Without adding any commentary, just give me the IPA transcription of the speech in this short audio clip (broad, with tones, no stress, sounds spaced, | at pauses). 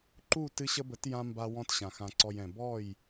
ǃ u˦˨ t ɨ˧ ɕ ə˧ b ə˨˦ t j ã˧ m b a˧ w ɔ̃˧ t ɕ ã˨ x ã˨ ǀ ɔ˨ j ɛ̃˨ b ɔ˦˨ j